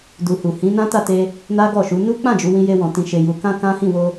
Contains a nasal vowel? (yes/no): yes